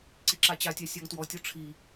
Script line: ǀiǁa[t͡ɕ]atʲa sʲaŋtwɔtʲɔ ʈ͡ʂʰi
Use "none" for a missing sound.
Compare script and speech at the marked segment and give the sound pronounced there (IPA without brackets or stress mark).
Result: t͡ɕ